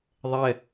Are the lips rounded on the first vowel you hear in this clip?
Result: no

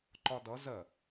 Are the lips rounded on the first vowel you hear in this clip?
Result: yes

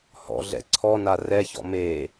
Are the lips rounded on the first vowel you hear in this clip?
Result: yes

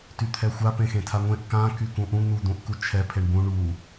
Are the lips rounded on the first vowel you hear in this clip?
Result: yes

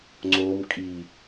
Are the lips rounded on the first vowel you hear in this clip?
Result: yes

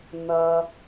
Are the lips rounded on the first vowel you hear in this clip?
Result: no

